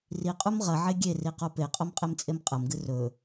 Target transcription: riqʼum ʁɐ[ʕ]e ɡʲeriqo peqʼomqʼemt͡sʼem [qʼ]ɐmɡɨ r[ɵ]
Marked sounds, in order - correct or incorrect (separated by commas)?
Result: correct, correct, correct